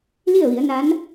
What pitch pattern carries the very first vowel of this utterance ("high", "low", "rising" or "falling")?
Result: falling